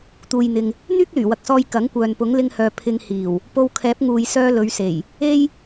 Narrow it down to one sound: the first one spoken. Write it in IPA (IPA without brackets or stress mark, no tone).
t̪